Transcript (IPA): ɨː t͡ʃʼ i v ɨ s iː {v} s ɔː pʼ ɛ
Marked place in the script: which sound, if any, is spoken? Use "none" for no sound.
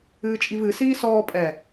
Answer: none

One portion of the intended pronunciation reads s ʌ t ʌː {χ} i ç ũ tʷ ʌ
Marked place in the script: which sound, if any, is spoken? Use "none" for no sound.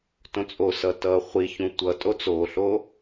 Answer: χʷ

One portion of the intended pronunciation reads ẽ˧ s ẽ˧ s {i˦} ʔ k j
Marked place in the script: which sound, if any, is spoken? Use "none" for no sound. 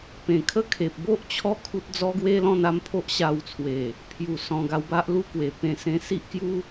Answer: i˦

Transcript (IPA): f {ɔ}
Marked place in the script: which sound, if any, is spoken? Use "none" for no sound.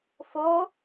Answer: o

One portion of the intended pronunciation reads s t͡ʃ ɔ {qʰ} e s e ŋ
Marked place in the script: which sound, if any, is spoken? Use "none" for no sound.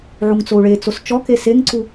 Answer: k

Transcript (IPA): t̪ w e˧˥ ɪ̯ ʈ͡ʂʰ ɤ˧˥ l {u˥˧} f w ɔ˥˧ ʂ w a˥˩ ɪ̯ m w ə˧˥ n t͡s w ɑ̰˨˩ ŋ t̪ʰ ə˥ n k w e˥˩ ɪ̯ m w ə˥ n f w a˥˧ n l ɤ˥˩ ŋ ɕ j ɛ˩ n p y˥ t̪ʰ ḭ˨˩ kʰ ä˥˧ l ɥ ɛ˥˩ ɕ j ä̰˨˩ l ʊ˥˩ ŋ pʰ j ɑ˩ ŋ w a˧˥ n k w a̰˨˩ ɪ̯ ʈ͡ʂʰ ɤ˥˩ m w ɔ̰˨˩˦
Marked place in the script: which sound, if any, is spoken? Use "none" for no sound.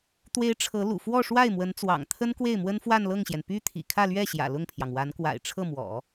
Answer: ṵ˨˩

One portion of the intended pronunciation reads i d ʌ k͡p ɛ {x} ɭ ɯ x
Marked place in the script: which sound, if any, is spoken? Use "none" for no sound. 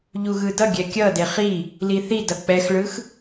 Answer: x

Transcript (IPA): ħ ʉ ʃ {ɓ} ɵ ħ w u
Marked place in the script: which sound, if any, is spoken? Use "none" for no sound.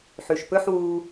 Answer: p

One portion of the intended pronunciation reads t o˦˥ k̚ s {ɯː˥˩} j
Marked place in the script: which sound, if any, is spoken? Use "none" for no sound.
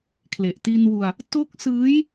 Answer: ɯː˦˥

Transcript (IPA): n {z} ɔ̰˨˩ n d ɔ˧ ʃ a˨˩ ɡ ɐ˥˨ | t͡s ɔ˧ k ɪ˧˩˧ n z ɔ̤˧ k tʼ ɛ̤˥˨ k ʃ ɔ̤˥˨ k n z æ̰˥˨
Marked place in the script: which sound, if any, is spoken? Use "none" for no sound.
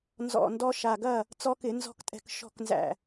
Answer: z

